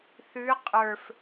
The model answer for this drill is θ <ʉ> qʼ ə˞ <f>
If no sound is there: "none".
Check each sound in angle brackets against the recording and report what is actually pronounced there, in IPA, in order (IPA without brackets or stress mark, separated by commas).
ʉ, f